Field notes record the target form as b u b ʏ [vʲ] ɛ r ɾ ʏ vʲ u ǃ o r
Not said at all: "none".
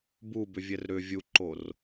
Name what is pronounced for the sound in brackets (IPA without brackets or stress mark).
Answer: vʲ